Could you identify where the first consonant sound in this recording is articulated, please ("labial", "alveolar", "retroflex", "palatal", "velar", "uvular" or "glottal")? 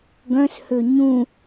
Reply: velar